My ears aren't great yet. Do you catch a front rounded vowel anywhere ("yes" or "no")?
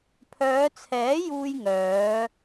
yes